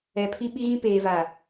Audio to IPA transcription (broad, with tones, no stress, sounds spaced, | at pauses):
ɛ˨ pʰ i˦ ɓ i˦ ɣ ĩ˦ p eː˨ v aː˨